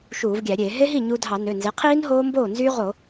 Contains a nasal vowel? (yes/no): no